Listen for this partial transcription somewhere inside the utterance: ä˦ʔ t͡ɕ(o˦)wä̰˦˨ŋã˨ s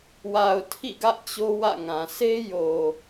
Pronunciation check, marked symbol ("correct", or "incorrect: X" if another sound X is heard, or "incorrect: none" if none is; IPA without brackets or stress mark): correct